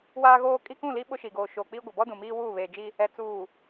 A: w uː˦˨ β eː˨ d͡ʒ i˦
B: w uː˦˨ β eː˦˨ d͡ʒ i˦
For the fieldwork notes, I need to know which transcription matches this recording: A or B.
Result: A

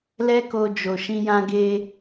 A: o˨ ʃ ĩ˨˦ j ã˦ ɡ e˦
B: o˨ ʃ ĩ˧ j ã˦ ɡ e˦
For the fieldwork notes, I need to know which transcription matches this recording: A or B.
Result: B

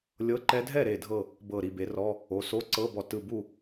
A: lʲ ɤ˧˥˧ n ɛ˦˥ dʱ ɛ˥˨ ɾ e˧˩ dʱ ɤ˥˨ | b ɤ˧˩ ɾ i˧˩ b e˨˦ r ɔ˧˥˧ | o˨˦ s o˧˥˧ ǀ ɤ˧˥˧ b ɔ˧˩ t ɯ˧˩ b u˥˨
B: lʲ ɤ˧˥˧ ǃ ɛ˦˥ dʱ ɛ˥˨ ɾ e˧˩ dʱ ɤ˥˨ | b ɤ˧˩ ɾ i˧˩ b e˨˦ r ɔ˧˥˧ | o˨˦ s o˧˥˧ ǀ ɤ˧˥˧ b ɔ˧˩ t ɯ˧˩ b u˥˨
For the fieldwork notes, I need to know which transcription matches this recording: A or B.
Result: B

